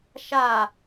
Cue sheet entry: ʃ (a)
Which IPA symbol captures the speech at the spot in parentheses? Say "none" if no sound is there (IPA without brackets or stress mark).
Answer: a